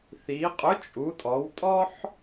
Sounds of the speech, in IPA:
θi˩˧qʼʊ˨˥t͡ʃʼu˩˧tʼɔ˩˧w tʼɔ˦ħ

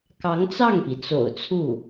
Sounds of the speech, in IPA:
kɑ˧˥ŋt͡sɑ˥˩ŋpi˩t͡so̰˨˩ʊ̯ t͡sʰu˥˩

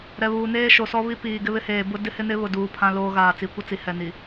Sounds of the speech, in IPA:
ɾɛ˨βuː˨neː˦ ʃo˨sɔ˦βi˦ piː˨ ɡɪ˦βɪ˦heː˨ bʊ˦ dɪ˦hɪ˦ nɪ˦βʊ˨duː˨ pʰã˦loː˦ ɣaː˨t͡si˨kʷɪ˦t͡si˨ hɛ˨ni˨

